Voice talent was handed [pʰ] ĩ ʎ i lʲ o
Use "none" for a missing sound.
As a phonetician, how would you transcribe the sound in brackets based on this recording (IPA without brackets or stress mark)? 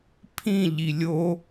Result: pʰ